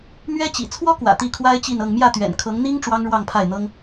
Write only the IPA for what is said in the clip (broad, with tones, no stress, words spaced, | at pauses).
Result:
mɥɛ˥t͡ɕḭ˨˩ t͡sʰwɔ˥kwä̰˨˩ t̪i˥˩kʰwa˥ɪ̯ t͡ɕi˥˧nɤ˥˧ŋ mjä˥˩t̪ɥɛ̰˨˩n kʰɤ˧˥ŋn̪i˥ŋ ʈ͡ʂwɑ˥ŋɻwɑ˥˧ŋpʰa˥˩ɪ̯n̪ɤ˥ŋ